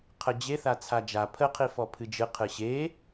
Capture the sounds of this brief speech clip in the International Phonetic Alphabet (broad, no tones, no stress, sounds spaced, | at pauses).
qʰ ə d͡ʑ e θ a t͡sʰ a d͡ʒ a pʰ ə qʰ i f ɔ pʰ ɨ d͡ʒ ɨ qʰ ɨ ɕ e